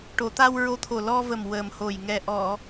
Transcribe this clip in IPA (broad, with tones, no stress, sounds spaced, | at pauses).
ʈ o˨˩˨ t̪ a˧ w ɹ o˧˥ t̪ʰ o˨˩ l ɔ˧ v ə˨˩ m w ə˨˩ m h o˨˩ j ŋ ɛ˨˩ ʔ ɔ˨˩˨